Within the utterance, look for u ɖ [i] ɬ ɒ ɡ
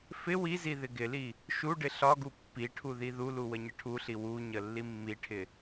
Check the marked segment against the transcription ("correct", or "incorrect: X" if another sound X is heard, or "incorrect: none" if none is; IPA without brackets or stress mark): incorrect: ɪ